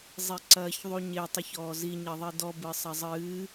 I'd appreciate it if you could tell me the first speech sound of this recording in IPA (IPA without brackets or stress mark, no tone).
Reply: zˤ